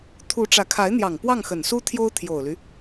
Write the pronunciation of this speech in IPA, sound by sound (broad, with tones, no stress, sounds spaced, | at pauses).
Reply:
t̪ʰ u˧˥ ʈ͡ʂ ä˧˥ kʰ a˧˥ ɪ̯ n̪ j ɑ˨˩ ŋ p w ɑ˥˩ ŋ x ə˨˩ n s u˥ t̪ʰ j o˥ ʊ̯ t̪ʰ j o˨˩ ʊ̯ l y˦